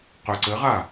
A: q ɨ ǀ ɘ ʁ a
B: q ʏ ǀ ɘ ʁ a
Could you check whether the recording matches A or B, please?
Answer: B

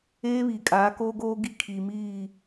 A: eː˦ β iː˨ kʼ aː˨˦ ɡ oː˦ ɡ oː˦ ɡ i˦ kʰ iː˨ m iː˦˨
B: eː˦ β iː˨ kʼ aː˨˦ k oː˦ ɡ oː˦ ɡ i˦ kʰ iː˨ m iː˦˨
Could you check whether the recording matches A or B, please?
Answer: B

